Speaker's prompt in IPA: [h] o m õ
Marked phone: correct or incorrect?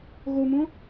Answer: incorrect